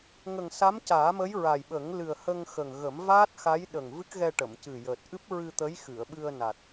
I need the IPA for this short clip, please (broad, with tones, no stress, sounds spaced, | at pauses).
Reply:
ŋ ə˨˩ ŋ s a˧˥ m c aː˨˩˦ m ə˧˥ j ɹ aː˨˩ j ɓ ə˨˩˦ ŋ l ɨ˨˩ ə̯ h ə˧ ŋ x ə˨˩ ŋ ɣ ə˨˩˦ m v aː˦˥ t̚ x a˧˥ j ɗ ə˨˩ ŋ v ɨ˦˥ k̚ ɣ ɛ˧ ʈ ə˨˩˨ m c ɨ˨˩ j əː˨˩ t̚ ʔ ɨ˦˥ p̚ ɹ ɨ˧ t̪ ə˧˥ j x ɨ˨˩˨ ə̯ ɓ ɨ˧ ə̯ n a˨˩ t̚